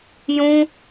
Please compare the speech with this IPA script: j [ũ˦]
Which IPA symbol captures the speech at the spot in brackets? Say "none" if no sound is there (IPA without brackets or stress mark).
ũ˦